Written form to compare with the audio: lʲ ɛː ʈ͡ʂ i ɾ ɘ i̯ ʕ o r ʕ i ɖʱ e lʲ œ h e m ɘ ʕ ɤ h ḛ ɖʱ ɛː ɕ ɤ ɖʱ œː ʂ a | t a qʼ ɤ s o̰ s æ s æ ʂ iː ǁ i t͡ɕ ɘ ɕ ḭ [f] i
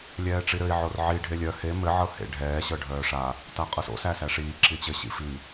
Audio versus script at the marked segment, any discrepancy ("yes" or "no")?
no